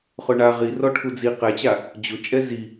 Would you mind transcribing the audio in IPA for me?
χ ʊ ɳ a ʁ i r ɔ ʈʰ u d͡z i q ɛ t͡ɕ a | d͡ʑ ʊ t͡ʃʼ ɛ z i

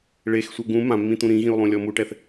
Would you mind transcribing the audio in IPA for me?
ɭ e x sʷ ɛ ɡ ũ m ã mː ĩ t̪ ũ ɾ ĩ ɣ ĩ u̯ lˠ ũ lʲ ɔ m u ʈ ɛ θ

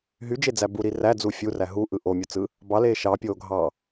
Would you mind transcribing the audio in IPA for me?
ɦ y d͡ʒ e d͡z æ b u ɾ i r æ d͡z u fʲ u r æ ɦ u ʔ ɯ ʔ o mʲ u t͡s ɯ | b ɑ l eː ʃ ɑ pʲ oː ɡʱ ɑ

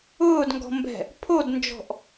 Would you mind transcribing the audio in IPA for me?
ʊː d ŋ ɡ ɔ̤ m b ɛ̤ | pʰ o d n d͡ʒ ɔ̤ ʔ

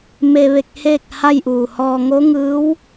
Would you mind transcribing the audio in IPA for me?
m e˧ ʋ e˧ k̚ h eː˥˨ k̚ h a˥˨ j ʔ uː˧˩ h ɔː˧ ŋ o˧˥ ŋ ɯː˧˥ w

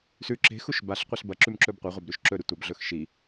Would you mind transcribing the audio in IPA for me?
s ʉ ǁ e̤ x u ʃ b a ɬ qʷ e ɬ b ɐ ǁ ʉ m ǁ ɵ b qʷ ɐ ʁʷ ɐ b ɾ ʉ ʃ ǁ ɵ ɾ ɨ tʷ ɐ b ɮ ɵ x ʃ i

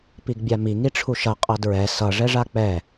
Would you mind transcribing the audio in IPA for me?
p i ɡ bʲ a m i ŋ i ʈ͡ʂʰ u ʃ ʌ qʼ ʌ d ɹ ɛ s ʌ ʐ ɛ ʐ a k͡p ɛ

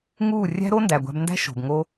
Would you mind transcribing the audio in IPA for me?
ŋ uː˦˨ rʲ æ̤˦ ɾ o˦ n d æ˨ ɡʷ æ̤˧ b n d æ̤˦ ʃ o̤˨ b ŋ o˦

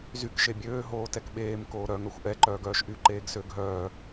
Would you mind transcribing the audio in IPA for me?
z y k ʃ e bʲ øː ɦ oː t ɛ k ɓ eː m k oː ɾ œ ŋ œ xʷ ʔ ɛ ǃ œː ɡ œː ʃ ʔ y ǃ eː ɡ s ø ɡʱ œː

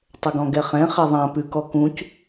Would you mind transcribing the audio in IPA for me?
tˤ ə ɡ ɔ̃ ɡ ɛ χ ɛ̃ χ ɛ ðˤ ã p ʉ k ɔ k ũ c

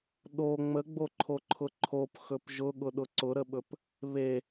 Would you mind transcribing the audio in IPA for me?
ɗ o ŋ͡m ə ɡ͡b o ǃʰ o ǃʰ ʊ ǃʰ o p x ɵ p ʒ ʊ ɠ ʊ ɗ ʊ ǀ ʊ ɾ ə ɓ ɵ p | β e

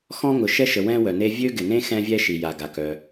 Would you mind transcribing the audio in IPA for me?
x ɔ̃˥ ŋ ʊ˩ ʃ ɛ˥ ʃ ə˩ w ɛ̃˥ w œ˩ n e˥ vʲ ø˥ ɡ ɪ˩ n ẽ˥ x ɛ̃˥ vʲ ɛ˥ ʃ i˩ j a˩ ɡ a˩ k œ˩

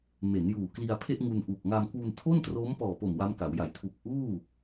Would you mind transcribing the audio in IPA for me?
m e˩˦ n j uː˨˩ k l i˧ a̯ pʰ e˥˩ ʔ ŋ u˧ n ʔ u˨˩ k̚ ŋ a˧ m k w u˧ n tʰ o˥˩ n t r oː˦˥ m p ɔː˨˩ p o˨˩ m w a˦˥ m k a˩˦ w j a˨˩ j tʰ u˨˩ k̚ ʔ uː˥˩

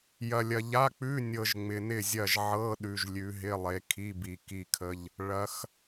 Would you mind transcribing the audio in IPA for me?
j ɐ˨ lʲ ɐ˨ ʎ a˧˥˧ k͡p ʉ˧˥˧ nʲ ɤ˨ ʒ ŋ͡m ɪ˨ n ɪ˥˨ zʲ ɐ˥˨ ʒ ʕ ɤ˧˥˧ ɗ ʉ˨ ʒ lʲ ʉ˨˦ ɦ ɪ˧˥˧ lˠ e˨˦ kʰ i˧˥˧ b i˨ k i˥˨ kʰ ə˧˥˧ ʎ | ɭ ɐ˨˦ x

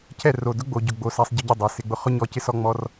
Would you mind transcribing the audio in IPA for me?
cʰ ɛ˦˨ r o˨ d ʊ˦ ɡ͡b o˨ ɟ ʊ˨ ɡ͡b o˨ s a˧ sˤ ɟ ɪ˧ ɟ ɪ˦˨ dˤ a˨ s ɪ˨ ɡ͡b ʊ˧ χ ʊ˦ ɲ ɔ˧ c ɪ˦ s ɔ˦ ŋ͡m ɔ˦ r

